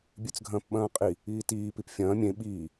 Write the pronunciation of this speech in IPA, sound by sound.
bʲʉt͡sɡʱɐ̃ːpɓɐ̃ːqʼi | iːtiː pipfʲɐ̃ː mʲẽ ɓiː

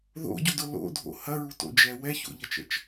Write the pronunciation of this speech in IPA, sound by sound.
ðo̰ɟudʊ lo̰dʱo̰ hɐɹuto̰d͡ʒɛ wɛço̰ʎɐt͡ʃə̰t͡ʃ

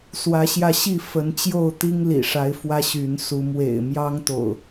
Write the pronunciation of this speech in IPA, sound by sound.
swä˨˦ɕjä˧ɕi˥˨ fə˨˦n t͡ɕjo˥˨ʊ̯t̪i˦ŋ lḭ˨˩ʂa˨˦ɪ̯fwä˦ ɕy˨˦nsu˨˦ mwḛ˨˩ɪ̯mjɑ˦ŋt̪o̰˨˩ʊ̯

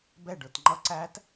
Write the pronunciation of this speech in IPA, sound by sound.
bɛɖə˞t ŋ͡ǃʌ ǀæt

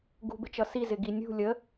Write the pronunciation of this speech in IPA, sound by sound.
ɡṳbɪt͡ʃʌ sizɪɡi nʲṳ lʲə

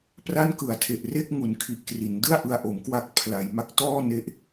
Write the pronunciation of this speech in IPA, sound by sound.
pra˥˩nkɯ˨˩a̯tʰe˨˩ʔre˥˩k̚ ŋu˨˩nkʰi˨˩ʔkri˩˦n dɯ˥˩a̯ʔɯ˧a̯ ʔo˩˦mkwa˦˥k̚ pʰla˩˦j ma˦˥k̚tɔː˥˩ne˦˥ʔ

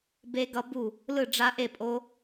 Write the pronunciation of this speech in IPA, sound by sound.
be˦˥ɡʌ˦˥bu˥˨ | lɯ˥˨ɖ͡ʐa˦˥ʔe˥˨pʼo˦˥

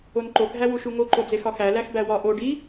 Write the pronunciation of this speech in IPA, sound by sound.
onǃo ɡʱæwuʃuŋo ǃod͡zexɒxæ læxbæwɒ ʔo ɖi

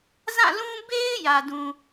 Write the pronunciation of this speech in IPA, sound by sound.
zã˦˨lũ˦ be˦ɪ̯ jä˨dũ˨

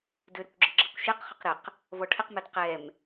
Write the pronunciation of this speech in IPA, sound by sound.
dʏɾʏkʷɡ͡ǁə ɡ͡ǁəkʷʃeq χʊqɾɪq | vɔʈʰɪqmɛd qɛm

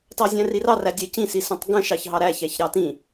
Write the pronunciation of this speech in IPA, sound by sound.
tɑzʲæ̃rirɑ rædʲɛcĩsi sə̃tˤɡə̃ ʃɑçɦɑɾæçæç ɾɑtĩ

